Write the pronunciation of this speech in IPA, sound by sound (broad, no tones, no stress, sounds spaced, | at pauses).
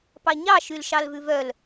p ɑ ɲ ɑ ʃ y l ʃ ɑ l v ʉ v œ l